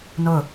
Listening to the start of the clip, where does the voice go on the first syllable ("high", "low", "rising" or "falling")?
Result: falling